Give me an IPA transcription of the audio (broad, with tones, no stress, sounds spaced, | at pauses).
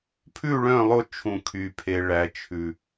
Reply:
pʰ ʉ˦˨ ɭ œ̃˦˨ lˠ o˦ t͡ʃʰ ũ˨ kʰ y˨ pʰ e˨ ɭ æ˨ t͡ʃʰ ʉ˨